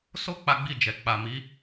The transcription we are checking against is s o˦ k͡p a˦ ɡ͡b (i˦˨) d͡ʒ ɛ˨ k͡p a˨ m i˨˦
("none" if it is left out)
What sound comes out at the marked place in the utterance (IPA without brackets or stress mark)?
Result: i˦˨